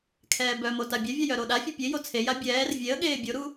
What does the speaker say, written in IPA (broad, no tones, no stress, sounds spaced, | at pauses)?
kʰ ɛː b œ m o t a bʲ ɛ vʲ a j œ ɾ o ɗ a fʲ ɛ pʲ e j o t͡sʰ e j a bʲ ɛː r vʲ e ə̯ ɠ eː bʲ o ɾ u